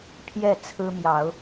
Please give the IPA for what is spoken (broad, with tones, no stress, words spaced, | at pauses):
pʰjɛ˥˨ t͡sʰɹ̩˦ mjɑ˨˦ʊ̯